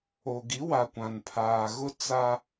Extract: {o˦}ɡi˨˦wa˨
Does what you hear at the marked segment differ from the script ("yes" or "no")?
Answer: yes